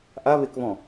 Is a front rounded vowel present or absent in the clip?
absent